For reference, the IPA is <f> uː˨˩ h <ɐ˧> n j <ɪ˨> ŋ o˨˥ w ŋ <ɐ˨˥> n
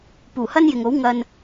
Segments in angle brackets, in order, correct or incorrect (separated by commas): incorrect, incorrect, correct, incorrect